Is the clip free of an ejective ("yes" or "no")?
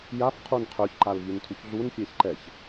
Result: yes